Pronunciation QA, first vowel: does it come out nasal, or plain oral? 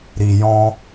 oral